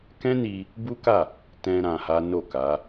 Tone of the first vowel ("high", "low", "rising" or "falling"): high